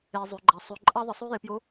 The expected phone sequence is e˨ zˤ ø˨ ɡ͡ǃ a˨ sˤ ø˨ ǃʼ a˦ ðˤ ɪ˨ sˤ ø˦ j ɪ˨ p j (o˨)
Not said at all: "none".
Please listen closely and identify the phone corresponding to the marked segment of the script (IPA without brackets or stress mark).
o˨˦